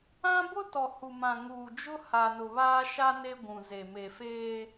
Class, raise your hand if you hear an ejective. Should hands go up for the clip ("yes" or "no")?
no